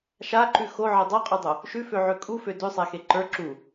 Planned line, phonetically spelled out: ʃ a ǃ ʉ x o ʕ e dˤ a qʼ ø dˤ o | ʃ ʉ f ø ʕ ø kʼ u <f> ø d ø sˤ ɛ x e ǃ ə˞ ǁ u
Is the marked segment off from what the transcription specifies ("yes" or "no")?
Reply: no